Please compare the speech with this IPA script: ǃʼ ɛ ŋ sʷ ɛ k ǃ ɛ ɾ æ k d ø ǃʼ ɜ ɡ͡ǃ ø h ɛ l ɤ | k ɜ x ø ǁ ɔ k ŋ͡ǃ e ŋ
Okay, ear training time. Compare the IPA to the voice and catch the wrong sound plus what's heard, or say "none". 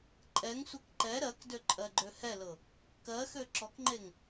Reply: æ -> ɜ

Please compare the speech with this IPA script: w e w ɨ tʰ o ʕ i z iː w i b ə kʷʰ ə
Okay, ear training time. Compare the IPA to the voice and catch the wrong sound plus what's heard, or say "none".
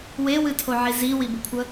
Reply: none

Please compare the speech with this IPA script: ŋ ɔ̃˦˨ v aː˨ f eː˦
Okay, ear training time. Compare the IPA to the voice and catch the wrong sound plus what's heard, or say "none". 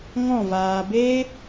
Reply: f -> b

